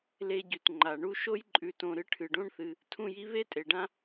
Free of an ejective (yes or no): no